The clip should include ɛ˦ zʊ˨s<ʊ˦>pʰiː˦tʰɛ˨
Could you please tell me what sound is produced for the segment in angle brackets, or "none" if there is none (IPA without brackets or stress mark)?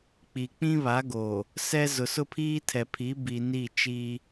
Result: ʊ˦